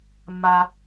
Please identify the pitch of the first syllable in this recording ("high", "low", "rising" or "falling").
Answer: low